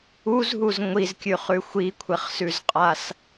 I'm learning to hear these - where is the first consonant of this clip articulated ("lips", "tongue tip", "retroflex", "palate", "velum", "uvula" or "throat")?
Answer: tongue tip